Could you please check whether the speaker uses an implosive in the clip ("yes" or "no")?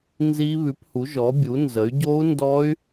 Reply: no